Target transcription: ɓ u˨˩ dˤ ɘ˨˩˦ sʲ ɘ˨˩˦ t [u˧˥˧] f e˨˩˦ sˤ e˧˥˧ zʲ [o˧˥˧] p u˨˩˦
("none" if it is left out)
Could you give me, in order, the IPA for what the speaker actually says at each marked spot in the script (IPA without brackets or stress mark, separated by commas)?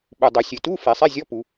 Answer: u˧˥˧, ɔ˧˥˧